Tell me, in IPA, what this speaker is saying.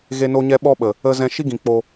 ɣ e˧ n o˧ ɲ ɛ˧ ɓ ɔ˧ ɓ ə˨ | ə˧ z ɛ̃˧ ʃ i˦ ɡ ĩ˨ k͡p o˧

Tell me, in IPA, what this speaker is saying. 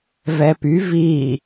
v ɛ p y v i

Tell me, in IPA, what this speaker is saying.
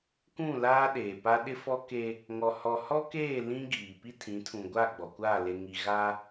k ũ˦˨ l aː˦ ɗ eː˨ p a˦ ɗ ɪ˦ f ɔ˦ k e˦ | ŋ ɔ˨ h ɔ˨ h ɔ˦ k eː˦˨ l ĩ˦ ɡ iː˨ p i˦ tʰ ĩ˨˦ tʰ ũ˨ ɡʷ a˦˨ ɡ͡b ɔ˨ kʷ aː˦˨ l e˨ ŋ i˨ ɣ a˦

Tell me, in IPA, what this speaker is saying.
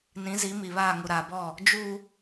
n ĩ˨˦ z i˨˦ m i˨ β aː˦˨ ŋ u˨ ɾ aː˨ b ɔ˦˨ | d͡ʒ u˦

